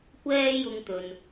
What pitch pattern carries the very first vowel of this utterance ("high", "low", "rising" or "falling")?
high